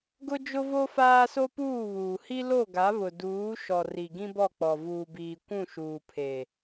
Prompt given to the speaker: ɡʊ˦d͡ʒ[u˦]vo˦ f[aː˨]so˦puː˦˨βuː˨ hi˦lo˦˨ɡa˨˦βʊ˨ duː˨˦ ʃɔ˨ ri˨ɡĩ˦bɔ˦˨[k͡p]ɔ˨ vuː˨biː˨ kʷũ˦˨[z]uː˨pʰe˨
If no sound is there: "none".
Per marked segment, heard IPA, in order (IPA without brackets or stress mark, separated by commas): ʊ˦, aː˦, k͡p, ʃ